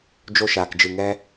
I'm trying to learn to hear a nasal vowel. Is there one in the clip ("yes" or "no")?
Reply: no